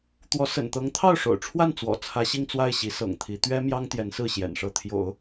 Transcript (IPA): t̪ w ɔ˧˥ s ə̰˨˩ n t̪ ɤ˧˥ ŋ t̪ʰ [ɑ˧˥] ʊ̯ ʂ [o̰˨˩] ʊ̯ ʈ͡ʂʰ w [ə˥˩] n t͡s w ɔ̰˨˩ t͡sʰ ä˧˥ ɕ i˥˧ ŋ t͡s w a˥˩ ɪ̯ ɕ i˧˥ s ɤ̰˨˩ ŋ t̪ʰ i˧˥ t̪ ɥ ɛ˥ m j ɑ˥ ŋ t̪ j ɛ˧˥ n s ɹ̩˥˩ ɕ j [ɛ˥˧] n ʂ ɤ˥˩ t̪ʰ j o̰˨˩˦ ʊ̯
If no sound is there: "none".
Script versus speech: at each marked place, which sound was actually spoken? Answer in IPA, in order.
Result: ɑ˥˩, o̰˨˩, a˥˩, ɛ̰˨˩

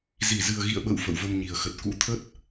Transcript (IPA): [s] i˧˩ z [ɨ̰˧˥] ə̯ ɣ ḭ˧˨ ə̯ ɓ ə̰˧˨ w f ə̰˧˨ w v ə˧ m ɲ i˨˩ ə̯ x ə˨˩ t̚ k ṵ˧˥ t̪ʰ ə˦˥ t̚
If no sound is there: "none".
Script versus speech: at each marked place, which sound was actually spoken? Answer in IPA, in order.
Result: z, ɨ˨˩

